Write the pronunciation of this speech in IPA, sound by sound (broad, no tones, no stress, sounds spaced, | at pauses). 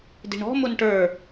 d i̤ ɳ ɔ̤ m ʊ n ʈ ə˞